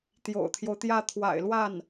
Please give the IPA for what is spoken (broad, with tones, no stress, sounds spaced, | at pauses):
t̪ j o̰˨˩ ʊ̯ t̪ʰ j o˦ ʊ̯ t̪ j ä˥˩ t̪ʰ w a̰˨˩ ɪ̯ l w a˥˩ n